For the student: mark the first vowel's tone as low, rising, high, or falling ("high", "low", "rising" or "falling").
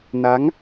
rising